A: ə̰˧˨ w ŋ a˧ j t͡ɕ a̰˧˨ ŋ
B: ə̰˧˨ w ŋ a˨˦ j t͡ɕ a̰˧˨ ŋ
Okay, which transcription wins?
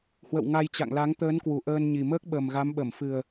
A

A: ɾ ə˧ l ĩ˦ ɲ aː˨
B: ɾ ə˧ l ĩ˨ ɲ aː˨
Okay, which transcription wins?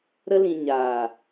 B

